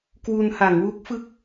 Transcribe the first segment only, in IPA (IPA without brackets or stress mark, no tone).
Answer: k